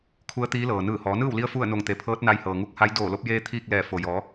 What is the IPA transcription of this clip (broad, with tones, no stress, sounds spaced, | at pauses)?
kʰ u˧˥ ə̯ t̪ iː˧˥ l ɤː˩ n ɯː˧˩ h ɔː˩˧ n ɯː˥˨ w l i˧ ə̯ f u˥˨ ə̯ n o˧˩ ŋ t̪ e˩˧ pʰ ɤː˧˥ t̚ n a˧ j h ɤː˩ ŋ u˧˥ k̚ h a˧˥ j d oː˧˩ l o˧ p̚ j eː˧ t̪ʰ iː˥˨ k̚ l ɛː˧˩ f o˩ j ɔː˩˧